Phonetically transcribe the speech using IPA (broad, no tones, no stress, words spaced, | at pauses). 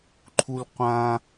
ǃʰulqʷã